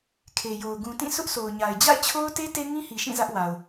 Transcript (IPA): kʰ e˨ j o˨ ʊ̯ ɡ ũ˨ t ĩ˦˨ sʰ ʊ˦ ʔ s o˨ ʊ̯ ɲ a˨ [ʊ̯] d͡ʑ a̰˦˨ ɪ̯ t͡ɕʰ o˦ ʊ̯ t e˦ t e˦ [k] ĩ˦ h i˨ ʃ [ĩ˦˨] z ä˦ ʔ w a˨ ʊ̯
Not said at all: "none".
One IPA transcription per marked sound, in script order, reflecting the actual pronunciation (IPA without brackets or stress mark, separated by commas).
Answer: ɪ̯, ŋ, ĩ˦˨